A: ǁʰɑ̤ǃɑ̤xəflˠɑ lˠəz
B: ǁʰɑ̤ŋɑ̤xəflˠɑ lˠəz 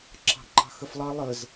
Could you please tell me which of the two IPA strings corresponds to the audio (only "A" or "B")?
A